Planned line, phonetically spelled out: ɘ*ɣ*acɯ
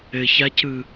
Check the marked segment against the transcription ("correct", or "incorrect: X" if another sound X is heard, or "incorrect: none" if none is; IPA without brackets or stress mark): incorrect: ç